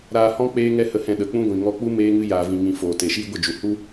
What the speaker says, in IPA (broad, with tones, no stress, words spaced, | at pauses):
ɾaː˧hɔ̃˦ k͡peː˦ŋɛ˦hə˧hɛ̃˧ ɗə˨k͡pũ˦ɡʷĩ˨ ŋɔ˧k͡pu˦ meː˦ŋɨ˦ jaː˧vĩ˧ ŋĩ˧ foː˨te˨ʃiː˦ ɡʷə˦˨d͡ʒu˨ hu˦